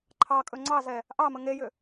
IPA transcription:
ǃʰ ɑ kʼ ɵ ŋ͡ǀ ɑ z ɛ | ʔ ɑ m ə ŋ e j ʏ

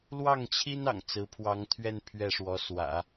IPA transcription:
l w ɑ˥˩ ŋ t͡ɕʰ i˥ n ɑ̰˨˩ ŋ t͡s ɹ̩˧˥ pʰ w ɑ˧˥ ŋ t̪ʰ ɥ ɛ˥˧ n pʰ ɥ ɛ˥˩ ʂ w ɔ˧˥ s w ä̰˨˩˦

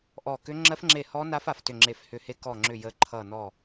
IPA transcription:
ʔ ɔ˦˨ k ʏ˦˥ ŋ͡ǁ ɜ˦˥ f ŋ͡ǁ e˦˨ h ɔ˦˥ n a˦˥ f a˨ f t ʏ˦˨ ŋ͡ǁ e˦˨ f h ʏ˦˨ h e˦˥ k ɔ˦˨ ŋ͡ǁ ʏ˦˨ j ə˦˥ ǃʰ ʌ˦˨ n ɔ˦˨

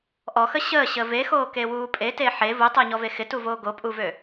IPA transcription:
ʔ ɔ x ə ɕ əː ɕ ə v e x oː k e w uː pʼ e t e ħ e v u tˤ əː ɲ ɔ v e x ɪ t u v oː ɡ o pʼ u v ø

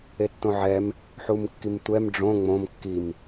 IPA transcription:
e tː õ ʕ ɛ m | ħ u m kː i m tʷ ɛ m ɖ͡ʐ õ ŋ͡m õ m kː i m

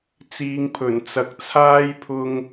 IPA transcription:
t͡s iː˨˧ ŋ pʰ ɵ˨˩ n t͡s ɐ˨ k̚ t͡sʰ aː˥ j pʰ ʊ˧ ŋ

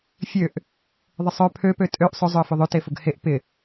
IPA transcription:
fʲ ø ʔ | ðˤ ɪ sˤ œ pʰ ø p ø tʼ ø ʔ sˤ ʊ zˤ ʏ ə̯ f ʏ ðˤ ø t e f ʊ ɡ h e ʔ p ɪ

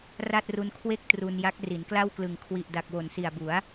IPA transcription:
r a˥˩ t̚ r u˧ n kʰ w e˥˩ k̚ t r u˧ n j a˦˥ k̚ r i˩˦ n k l a˥˩ w k l ɯ˨˩ ŋ kʰ w i˨˩ ʔ d a˨˩ k̚ w o˨˩ n s i˨˩ a̯ b u˩˦ a̯

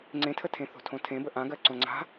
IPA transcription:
ŋ͡ǀ ẽ tʰ ə tʰ ẽ θ o̤ tʰ õ tʰ ẽ b ə ʔ ã ɡ ɜ ǀ õ ŋ͡ǀ a̤

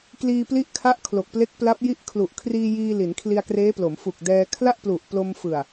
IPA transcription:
k l iː˧ p l i˦˥ ʔ kʰ a˦˥ ʔ kʰ l o˨˩ k̚ p l e˦˥ k̚ p l a˦˥ p̚ j i˥˩ ʔ kʰ l u˨˩ ʔ kʰ r iː˧ j iː˧ l i˩˦ n kʰ l i˧ a̯ k r eː˦˥ p l o˩˦ m f u˨˩ k̚ d ɛː˧ kʰ l a˥˩ ʔ p l u˨˩ ʔ p l o˧ m f ɯ˨˩ a̯

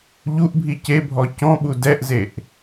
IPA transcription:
ʎ u ʔ bʱ i c e bʱ ɔ c ɔ̃ ɓ u d ɛ ʔ z e ʔ

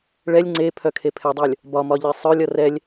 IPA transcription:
ɭ ɛ lʲ ŋ͡ǀ e pʰ œ kʰ e pʰ ɛ dˤ œ lʲ | b ɒ m ɒ ʎ e sˤ œ lʲ ʌ r ɛ lʲ

